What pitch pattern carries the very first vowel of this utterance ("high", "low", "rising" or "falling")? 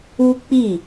high